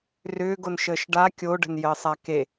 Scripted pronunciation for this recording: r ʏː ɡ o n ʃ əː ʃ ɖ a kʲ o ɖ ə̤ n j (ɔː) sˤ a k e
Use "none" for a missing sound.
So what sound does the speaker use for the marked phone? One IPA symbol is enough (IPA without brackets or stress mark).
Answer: əː